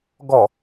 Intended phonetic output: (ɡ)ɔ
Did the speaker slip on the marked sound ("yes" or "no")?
no